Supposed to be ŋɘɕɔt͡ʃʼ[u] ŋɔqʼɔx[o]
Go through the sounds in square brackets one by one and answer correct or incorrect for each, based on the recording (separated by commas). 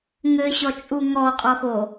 correct, correct